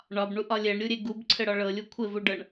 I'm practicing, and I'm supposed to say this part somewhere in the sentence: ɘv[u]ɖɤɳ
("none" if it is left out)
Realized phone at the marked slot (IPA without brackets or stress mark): u